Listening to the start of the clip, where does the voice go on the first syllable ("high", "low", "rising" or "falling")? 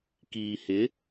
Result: low